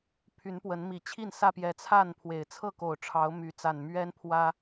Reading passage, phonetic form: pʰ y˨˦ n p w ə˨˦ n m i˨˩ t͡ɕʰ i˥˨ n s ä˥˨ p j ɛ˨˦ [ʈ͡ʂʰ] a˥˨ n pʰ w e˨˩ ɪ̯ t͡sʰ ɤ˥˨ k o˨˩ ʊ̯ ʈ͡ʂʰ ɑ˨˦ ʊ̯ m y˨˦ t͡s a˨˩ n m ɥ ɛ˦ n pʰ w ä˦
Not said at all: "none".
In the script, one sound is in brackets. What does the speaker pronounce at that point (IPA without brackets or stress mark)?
t͡sʰ